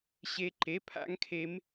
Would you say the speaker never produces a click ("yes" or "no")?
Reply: no